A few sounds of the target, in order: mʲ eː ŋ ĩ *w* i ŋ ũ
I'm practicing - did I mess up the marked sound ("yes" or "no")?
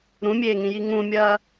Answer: yes